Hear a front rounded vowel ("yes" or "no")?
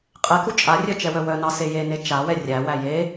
yes